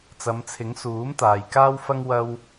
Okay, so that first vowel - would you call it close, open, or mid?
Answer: open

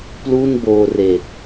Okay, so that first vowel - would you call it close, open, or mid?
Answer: close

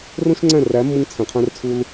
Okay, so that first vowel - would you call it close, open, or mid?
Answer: mid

